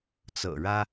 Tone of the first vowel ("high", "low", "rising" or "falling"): low